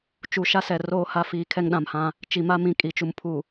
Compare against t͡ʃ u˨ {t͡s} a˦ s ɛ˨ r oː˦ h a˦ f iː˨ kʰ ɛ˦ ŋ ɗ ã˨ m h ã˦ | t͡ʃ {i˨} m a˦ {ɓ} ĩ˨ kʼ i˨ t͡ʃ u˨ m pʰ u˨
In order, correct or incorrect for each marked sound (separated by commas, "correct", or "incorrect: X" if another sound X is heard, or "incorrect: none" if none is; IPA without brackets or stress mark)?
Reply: incorrect: ʃ, correct, incorrect: m